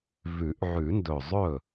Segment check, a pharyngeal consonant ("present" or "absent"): present